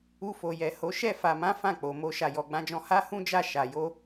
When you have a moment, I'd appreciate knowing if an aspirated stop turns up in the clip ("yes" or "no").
no